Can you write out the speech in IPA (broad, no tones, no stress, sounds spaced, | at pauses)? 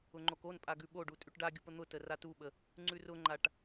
ʊ ŋ͡ǃ o k o n pʼ a ɡ ʉ ɓ o ɖ u tʼ ʉ ʈ ɖ a ɡʲ u p ə n̪ ʊ t ə r a t u ɓ ə | ŋ͡ǀ ʉ r ʊ ŋ͡ǃ a ʈ